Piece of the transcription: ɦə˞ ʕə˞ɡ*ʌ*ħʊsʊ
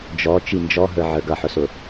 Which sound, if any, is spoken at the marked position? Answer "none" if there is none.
ʌ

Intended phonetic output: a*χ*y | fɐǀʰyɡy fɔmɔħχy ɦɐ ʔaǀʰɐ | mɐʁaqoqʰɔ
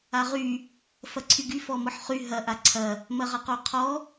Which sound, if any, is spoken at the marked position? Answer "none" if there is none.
ʁ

